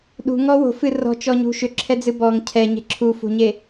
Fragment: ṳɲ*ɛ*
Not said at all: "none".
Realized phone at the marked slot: e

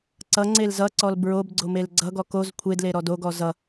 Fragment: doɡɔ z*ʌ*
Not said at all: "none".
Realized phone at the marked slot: ʌ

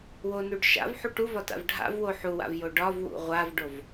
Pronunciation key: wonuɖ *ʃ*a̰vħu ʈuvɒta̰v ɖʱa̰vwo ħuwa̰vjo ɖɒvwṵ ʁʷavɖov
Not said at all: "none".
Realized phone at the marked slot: ʃ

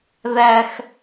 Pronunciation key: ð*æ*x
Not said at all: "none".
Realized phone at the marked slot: æ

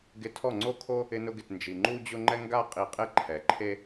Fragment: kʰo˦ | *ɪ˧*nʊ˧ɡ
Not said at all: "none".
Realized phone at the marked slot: ɪ˧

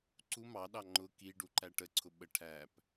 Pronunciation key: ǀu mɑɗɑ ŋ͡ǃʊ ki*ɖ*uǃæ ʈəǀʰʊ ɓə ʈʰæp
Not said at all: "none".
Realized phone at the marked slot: ɖ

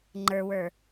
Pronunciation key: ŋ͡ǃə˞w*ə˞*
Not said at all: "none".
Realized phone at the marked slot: ə˞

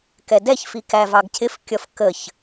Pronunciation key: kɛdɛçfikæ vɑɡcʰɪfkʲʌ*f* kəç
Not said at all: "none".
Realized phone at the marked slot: f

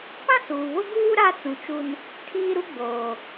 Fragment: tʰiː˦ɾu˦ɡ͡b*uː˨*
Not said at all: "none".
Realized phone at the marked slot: oː˨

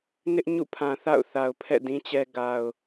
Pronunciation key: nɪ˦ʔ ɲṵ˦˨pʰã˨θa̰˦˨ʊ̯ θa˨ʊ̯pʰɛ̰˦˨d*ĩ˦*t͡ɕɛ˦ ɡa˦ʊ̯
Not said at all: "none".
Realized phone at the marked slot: ĩ˦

